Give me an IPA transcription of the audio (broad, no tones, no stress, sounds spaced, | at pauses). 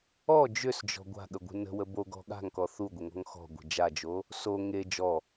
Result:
ɔ d͡ʒ ʏ s d͡ʒ ɔ̤ ɡʷ a̤ ɠ ə ɡʷ ə̤ n ə̤ w ə b o ɡ ɔ̤ ɠ a̤ ŋ k ɔ θ u ɡʷ ə ŋ ɔ̤ ŋ x ɔ̤ ɡʷ ə̤ d͡ʒ a d͡ʒ o | s o ŋ e d͡ʒ ɔ